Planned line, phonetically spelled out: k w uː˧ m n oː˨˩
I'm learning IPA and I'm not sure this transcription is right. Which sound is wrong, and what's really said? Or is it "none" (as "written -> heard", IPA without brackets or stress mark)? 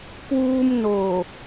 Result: none